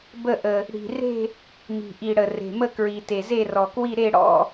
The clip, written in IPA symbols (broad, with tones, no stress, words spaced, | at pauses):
bə˥˧ʔə˨˩ | ɽi̤˨˩re̤˥˧ | mi̤˨˩ʔi˨˩ɽə˨˩ re̤˨˩mə˥˧ kɹi˨˩te˨˩ze˥˧ rɔ˨˩kwi˥˧ɾe˥˧ ɽɔ̰˥˧